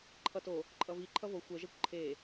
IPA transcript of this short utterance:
ǃʰ ʌ t o | ǃʼ ʌ v i ǃʰ ʌ v o xʷ ɛ ʒ ɛ kʷ ǃʰ e

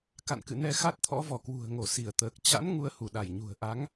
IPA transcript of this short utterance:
k a̰˧˨ n k ɨ̰˧˨ n ɛ˧ x a˦˥ t̚ t̪ʰ ɔ̰˧˥ v ɔ˧˩ k w ṳ˨˩ ə̯ ŋ o˧˩ s i˧˩ ə̯ t̪ əː˨˩ k̚ t͡ɕ a̰˧˥ n ŋ u˧ ə̯ h u˧˩ ɗ a˧˩ j ɲ ṳ˨˩ ə̯ ʔ a˨˦ ŋ

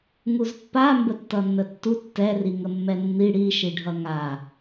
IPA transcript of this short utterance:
ŋ u z pː a m b ə tː ʌ nː ə tː u tː ɛ r i ŋ ə mː ɛ nː i ɽ i ʃ i ɖʱ ʌ ŋ a

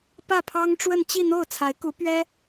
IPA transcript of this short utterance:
p ä˥˩ pʰ ɑ˥ ŋ ʈ͡ʂ w ə˥˧ n t͡ɕ i˥˧ n̪ o˥˩ ʊ̯ t͡sʰ a˧˥ ɪ̯ k u˧˥ p ɥ ɛ˥

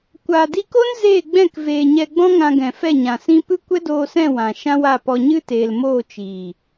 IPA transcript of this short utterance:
kʷ aː˨ d i˧ k o˦ n z eː˦˨ ɡ͡b ɛ̃˦˨ k v eː˨ ɲ ɛ˧ ɡ͡b ɔ̃˦ ŋ ã˧ ɡ ɛ̃˨ f ɛ˦˨ ɲ ã˨ s ĩ˦ p ɨ˦ kʷ ɛ˦ d oː˧ s ɛ̃˦˨ w ã˨ ʃ ã˦ w a˦˨ p ɔ˧ ɲ ɨ˦ t eː˨ l m oː˦˨ t͡ʃ iː˨

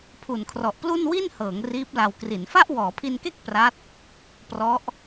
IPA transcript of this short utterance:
pʰ u˨˩ n kʰ r ɔ˨˩ ʔ p l u˥˩ n w i˥˩ n h ɤː˩˦ ŋ r iː˦˥ p̚ l a˧ w k r i˩˦ n f a˥˩ ʔ w ɔː˩˦ pʰ i˧ n k e˥˩ k̚ p r a˦˥ t̚ | p r ɔ˦˥ ʔ

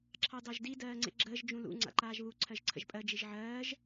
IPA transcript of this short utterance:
ǁʰ ɑ d ɑ ʒ d i d ɜː ŋ͡ǀ ḛ ɡ͡ǁ əː ʒ d͡ʒ ũ l ṵ ŋ͡ǀ a̰ ǃ aː ʒ β u ǀʰ ɜ ʒ ǀʰ ə̰ ʒ pʼ ɜ d͡ʒ i ʒ ʕ ɜː ʒ

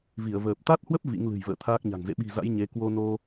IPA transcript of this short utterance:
v i˧˩ ə̯ v əː˨˩ p̚ t̪ a˦˥ t̚ h w ə˦˥ p̚ v ḭ˧˥ ŋ l ɨ̤˨˩ j v ə̰ː˧˨ t̪ʰ aː˦˥ k̚ ɲ a̤˨˩ ŋ z ḛ˧˨ ɓ i̤˨˩ z a̰˧˥ j ɲ e˨˦ k w o˧ n o˧

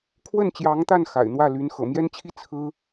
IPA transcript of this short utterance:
kʰ w ə˥˩ n t͡ɕ j ɑ˧˥ ŋ t̪ a˥˩ n x a̰˨˩ ɪ̯ n̪ w ä˥˩ l y˧˥ n x ɤ̰˨˩ m j ɛ˥ n t͡ɕʰ i˥ t͡sʰ ɹ̩˥

